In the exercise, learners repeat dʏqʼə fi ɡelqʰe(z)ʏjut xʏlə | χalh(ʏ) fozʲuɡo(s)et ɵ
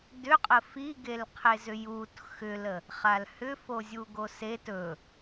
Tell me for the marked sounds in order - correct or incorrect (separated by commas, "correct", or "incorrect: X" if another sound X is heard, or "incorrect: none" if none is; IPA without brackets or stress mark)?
correct, correct, correct